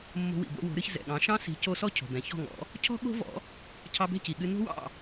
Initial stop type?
plain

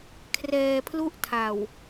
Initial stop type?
aspirated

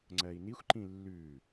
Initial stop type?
click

